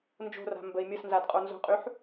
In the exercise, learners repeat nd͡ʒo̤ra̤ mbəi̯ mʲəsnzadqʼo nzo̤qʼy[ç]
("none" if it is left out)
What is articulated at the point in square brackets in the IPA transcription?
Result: ħ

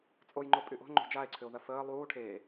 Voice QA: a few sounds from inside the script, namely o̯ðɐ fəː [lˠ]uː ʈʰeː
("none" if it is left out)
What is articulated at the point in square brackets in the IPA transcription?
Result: lˠ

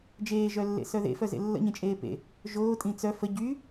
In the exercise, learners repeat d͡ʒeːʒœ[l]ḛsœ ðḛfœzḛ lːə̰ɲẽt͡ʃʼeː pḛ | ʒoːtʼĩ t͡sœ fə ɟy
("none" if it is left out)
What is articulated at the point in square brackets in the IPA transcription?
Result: lː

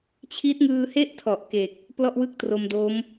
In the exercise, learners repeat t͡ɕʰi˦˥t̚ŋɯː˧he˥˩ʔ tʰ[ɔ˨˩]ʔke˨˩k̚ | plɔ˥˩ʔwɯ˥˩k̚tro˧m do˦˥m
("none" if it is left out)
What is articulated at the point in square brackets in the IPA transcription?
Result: ɔ˨˩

